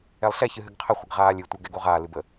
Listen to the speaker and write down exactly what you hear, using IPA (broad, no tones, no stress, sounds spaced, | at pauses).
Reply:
ɛ lˠ ɬ ɛ ç ɨ ɦ ɨ ɡ qʰ ə χʷ ɨ ɡ ʁ aː lʲ ɨ tʷ ɛ ɡ ɛ ɡ o ʁ a l ɨ b ə